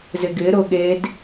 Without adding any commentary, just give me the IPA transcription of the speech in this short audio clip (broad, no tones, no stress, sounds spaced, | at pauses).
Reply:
z ɪ ɡ ɪ ɾ ʊ ɠ e d